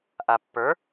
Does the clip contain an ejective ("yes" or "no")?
no